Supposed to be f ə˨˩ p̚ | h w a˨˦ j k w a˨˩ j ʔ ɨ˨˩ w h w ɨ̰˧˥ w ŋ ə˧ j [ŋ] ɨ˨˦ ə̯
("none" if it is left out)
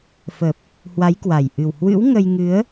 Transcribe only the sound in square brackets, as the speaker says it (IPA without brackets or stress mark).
ŋ